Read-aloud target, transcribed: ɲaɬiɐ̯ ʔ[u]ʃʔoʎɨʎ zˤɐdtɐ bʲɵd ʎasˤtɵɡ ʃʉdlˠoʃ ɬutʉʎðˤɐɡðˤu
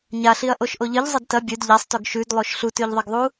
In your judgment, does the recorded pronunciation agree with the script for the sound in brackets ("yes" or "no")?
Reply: no